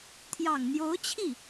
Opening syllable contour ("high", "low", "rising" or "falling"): low